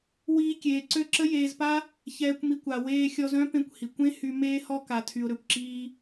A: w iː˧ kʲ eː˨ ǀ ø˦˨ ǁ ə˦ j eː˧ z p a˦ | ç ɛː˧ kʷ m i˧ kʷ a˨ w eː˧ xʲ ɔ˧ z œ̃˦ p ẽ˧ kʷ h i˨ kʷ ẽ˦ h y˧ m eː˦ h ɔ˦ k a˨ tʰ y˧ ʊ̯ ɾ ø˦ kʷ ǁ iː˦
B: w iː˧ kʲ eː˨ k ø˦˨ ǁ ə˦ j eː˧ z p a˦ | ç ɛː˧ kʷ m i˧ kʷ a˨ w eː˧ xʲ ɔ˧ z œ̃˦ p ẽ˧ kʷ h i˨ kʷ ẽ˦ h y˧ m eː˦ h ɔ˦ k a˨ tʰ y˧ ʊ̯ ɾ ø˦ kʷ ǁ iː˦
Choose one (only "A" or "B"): A